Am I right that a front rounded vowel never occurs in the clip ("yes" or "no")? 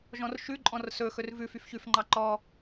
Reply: no